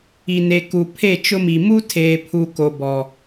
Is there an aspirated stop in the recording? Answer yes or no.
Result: yes